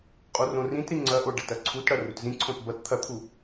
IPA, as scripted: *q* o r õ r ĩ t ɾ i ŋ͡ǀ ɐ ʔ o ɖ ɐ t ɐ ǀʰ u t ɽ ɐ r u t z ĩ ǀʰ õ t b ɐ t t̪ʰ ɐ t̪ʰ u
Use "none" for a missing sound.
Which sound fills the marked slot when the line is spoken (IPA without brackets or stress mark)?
qʼ